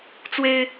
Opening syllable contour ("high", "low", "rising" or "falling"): high